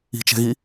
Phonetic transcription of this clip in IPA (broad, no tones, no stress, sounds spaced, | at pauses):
i̤ t͡ʃ ɛ̤ ɣ i